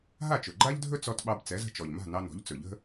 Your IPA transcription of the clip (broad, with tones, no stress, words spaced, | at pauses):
ɦa˥˩t͡ʃɵ˩ɡ͡ǃa˥ʎdʱɵ˥ t͡sɔ˧tɓɑ˧b t͡sɛ˩˥zə̤˧t͡ʃɔ˩ʎma̤˥˩ nɑ˧nɔ̤˩˥ʎ t͡sɵ˩ʎə̤˥